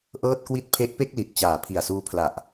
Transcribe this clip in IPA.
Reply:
ʔ ɤː˥˩ t̚ k w i˥˩ t̚ pʰ e˦˥ ʔ p e˥˩ k̚ l i˨˩ t̚ t͡ɕ aː˨˩ pʰ i˨˩ a̯ s uː˧ pʰ l a˨˩ ʔ

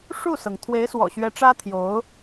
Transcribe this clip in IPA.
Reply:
ʂ u˥˩ s ɤ˩ ŋ t̪ʰ w e˧˥ ɪ̯ s w ɔ̰˨˩ ɕ ɥ ɛ˧˥ ʈ͡ʂ ä˥ t̪ʰ j o˧˥ ʊ̯

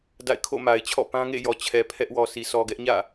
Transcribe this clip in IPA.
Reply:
d a̰˦˨ ɪ̯ kʰ o̰˦˨ m a˨ ɪ̯ t͡ɕʰ ɔ̰˦˨ p ã˦ ŋ ḛ˦˨ j ɔ˨ t͡ɕʰ ɛ˨ pʰ ɛ˦ ʔ w ɔ˨ s i˨ s ɔ˨ ɡ ɛ˦ ʔ ɲ ä̰˦˨

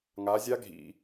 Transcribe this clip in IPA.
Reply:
ŋ a˨˦ zʲ a˦˥ ɡʱ ḭ˨

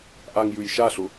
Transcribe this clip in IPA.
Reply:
ʔ a ŋ j ʉ j ʃ a ɬ ʊ

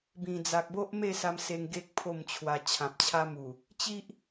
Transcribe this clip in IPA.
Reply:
b ĩ˨˩ d͡z a˨ k̚ b o˦ ʔ m e˥˧ s a˧ m s e˧ ŋ ɡ e˦ k̚ pʰ o˥˧ m t͡ɕʰ w a˧ t͡ɕʰ ã˨ p̚ t͡ɕʰ a˦ m u˨˩ | t͡ɕ i˦ ʔ

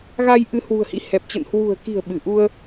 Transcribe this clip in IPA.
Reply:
ɣ a˧ j ʔ ɨ˨˦ h w ṳ˨˩ ə̯ h ḭ˧˥ h ɛ˨˩ p̚ t͡ɕ ə̰˧˨ n h w ṳ˨˩ ə̯ k i̤˨˩ ə̯ ɓ ɨ˧˩ ʔ u˧ ə̯

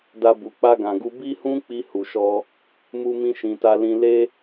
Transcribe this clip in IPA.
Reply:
d a˧ b u˨ k͡p a˧ ɡ ã˨ ɡ u˧ b i˦ h ũ˦ k͡p i˧ h u˨ ʃ ɔ˧ | m u˦ m ĩ˦ ʃ ĩ˧ t a˦ l ĩ˧ l e˦

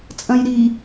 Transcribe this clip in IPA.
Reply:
t͡sʼ ɐ̃ j ɾ i

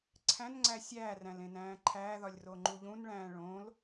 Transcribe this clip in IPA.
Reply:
ǀʰ æ̃ n ŋ͡ǀ æ sʲ æː r æ̃ l ẽ n æ̃ː ǃʰ æː ð ɒ lʲ r o ŋ͡ǃ u ʎ ũ n ɭ æ̃ː ɭ õ l

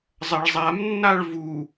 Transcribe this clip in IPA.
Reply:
zˤ ɐ ɭ zˤ a m nː a ɭ v u

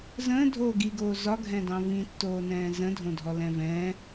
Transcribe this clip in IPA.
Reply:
z ə̃ː dʱ oː ɡ i ɡ oː z ɒ ɡʱ ɛ̃ d ɑ̃ v ĩ tː oː n ɛ̃ː z ə̃ dʱ õ dʱ ɔ l ɛ̃ v ɛ̃

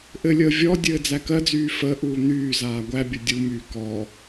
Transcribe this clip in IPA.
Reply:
ʔ ɘ lʲ əː vʲ ɔ dʲ ɘː d͡z æ k ɜ d͡z yː f əː ʔ uː n̪ yː z aː ɡʷ æ bʲ ə dʲ u m yː k ɔ

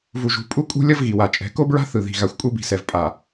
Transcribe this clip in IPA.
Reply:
v u˨ ʒ ṳ˨˦ pʼ u˦ kʼ ṳ˦ lʲ ʌ˦ v ɣ i˨ w a˨ t͡ʃʼ ɛ̤˨˦ k o˦ b ɹ a̤˦ θ ɯ˨ ð i̤˨ ɣ a˨ xʷ kʷʼ ɯ˦ b i̤˨ s ɛ˨ v pʼ a˨

